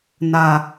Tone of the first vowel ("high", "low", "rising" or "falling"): high